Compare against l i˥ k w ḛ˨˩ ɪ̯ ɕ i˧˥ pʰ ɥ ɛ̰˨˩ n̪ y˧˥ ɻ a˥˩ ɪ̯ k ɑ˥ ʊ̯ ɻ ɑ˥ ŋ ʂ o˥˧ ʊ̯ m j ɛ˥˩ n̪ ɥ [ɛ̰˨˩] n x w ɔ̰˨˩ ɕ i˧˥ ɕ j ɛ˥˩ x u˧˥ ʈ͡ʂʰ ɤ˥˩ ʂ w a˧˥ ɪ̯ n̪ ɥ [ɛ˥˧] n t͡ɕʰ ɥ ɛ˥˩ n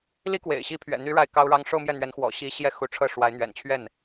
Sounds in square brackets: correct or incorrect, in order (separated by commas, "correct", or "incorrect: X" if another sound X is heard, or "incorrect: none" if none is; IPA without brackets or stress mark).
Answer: incorrect: ɛ˧˥, incorrect: ɛ̰˨˩